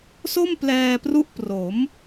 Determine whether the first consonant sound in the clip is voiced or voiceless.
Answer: voiceless